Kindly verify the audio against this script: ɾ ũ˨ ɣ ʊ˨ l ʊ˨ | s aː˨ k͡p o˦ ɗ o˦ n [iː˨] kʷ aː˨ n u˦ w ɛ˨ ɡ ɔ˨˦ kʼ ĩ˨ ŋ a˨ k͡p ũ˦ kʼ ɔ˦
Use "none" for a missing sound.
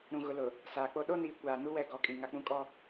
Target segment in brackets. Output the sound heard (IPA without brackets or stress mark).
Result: iː˨